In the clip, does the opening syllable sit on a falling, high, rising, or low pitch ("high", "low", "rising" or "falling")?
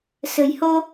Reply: low